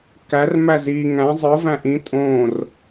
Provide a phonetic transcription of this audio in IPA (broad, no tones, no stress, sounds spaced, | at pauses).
k æ r m æ z i ŋ æ̃ zˤ ɯ v æ̃ ʔ ĩ tʼ õ r